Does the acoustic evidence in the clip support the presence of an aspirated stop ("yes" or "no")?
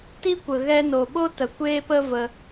no